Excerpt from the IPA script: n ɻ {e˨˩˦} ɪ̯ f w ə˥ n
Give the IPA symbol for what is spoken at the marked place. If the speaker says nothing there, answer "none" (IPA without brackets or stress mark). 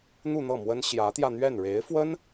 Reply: e˧˥